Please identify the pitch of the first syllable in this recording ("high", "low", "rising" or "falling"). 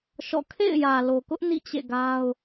falling